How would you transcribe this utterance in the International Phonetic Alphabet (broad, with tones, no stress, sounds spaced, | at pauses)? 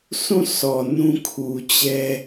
sʰ ũ˦˨ sʰ ɔ˨ n ũ˦ kʰ u˨ t͡ɕ ɛ˦